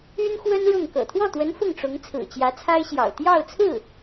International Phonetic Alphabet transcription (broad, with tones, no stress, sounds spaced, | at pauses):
y˥ n x w ə˥ n ɻ ʊ˥˩ ŋ k ɤ̰˨˩ t̪ʰ w ɔ˥˩ t̪ w ə˧˥ n f ʊ˥˩ ŋ ʈ͡ʂ ʊ˧˥ ŋ t͡sʰ ɹ̩˨˩ t͡ɕ j ä˧˥ t͡sʰ a˥ ɪ̯ ɕ j ɑ̰˨˩ ʊ̯ t̪ j ɑ˥˧ ʊ̯ t͡sʰ ɹ̩˥˩